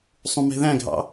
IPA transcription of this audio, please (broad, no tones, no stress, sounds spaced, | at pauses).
sˤ ũ m ɛ̤ ð æ̃ ɡʱ ɑ̰